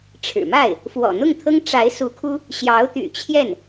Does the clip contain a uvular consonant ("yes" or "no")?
no